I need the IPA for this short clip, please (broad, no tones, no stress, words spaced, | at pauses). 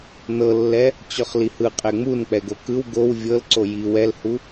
nɤlːɛ | t͡ɕɔχlihɯ qʼɛŋ͡mun k͡pɛɡokɯw ɡow vʲɤlǀo ji wɛlhu